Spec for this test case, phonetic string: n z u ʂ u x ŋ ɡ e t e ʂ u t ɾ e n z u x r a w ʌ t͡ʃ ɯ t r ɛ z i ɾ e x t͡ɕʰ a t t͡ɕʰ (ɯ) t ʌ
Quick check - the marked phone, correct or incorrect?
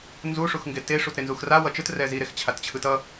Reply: correct